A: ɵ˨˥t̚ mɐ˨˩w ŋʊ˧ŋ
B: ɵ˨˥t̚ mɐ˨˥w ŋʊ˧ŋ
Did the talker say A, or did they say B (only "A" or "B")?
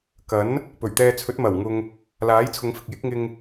A